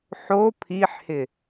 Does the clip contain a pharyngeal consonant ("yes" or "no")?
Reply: yes